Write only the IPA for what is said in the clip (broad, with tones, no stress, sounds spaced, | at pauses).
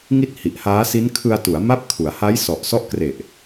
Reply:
ŋ i˥˩ t̚ h i˨˩ ʔ h aː˦˥ s i˦˥ n kʰ ɯ˧ a̯ t u˩˦ a̯ m a˦˥ p̚ kʰ u˩˦ a̯ h a˦˥ j s ɔ˨˩ ʔ s ɔ˦˥ ʔ k r e˨˩ ʔ